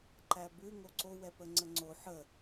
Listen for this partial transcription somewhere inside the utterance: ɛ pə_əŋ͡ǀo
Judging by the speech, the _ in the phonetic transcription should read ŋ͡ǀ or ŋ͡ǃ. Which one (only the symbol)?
ŋ͡ǀ